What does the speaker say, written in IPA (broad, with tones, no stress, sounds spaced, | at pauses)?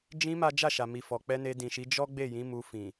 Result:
d͡ʒ ĩ˧ m a˦ d͡ʒ a˦˨ ʃ a˨ m i˨ f ɔ˨ k͡p ɛ˧ n e˧ d ĩ˨ ʃ i˨˦ d͡ʒ ɔ˦ ɡ͡b e˦˨ j ĩ˨˦ m u˧ f ĩ˨